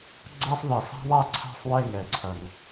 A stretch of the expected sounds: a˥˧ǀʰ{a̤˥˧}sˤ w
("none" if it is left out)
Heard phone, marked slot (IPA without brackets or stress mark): a̤˥˧